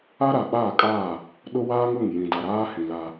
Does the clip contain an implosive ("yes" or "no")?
yes